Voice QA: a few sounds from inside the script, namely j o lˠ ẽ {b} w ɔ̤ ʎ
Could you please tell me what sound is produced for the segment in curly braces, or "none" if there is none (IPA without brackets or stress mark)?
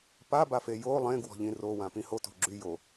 ɡ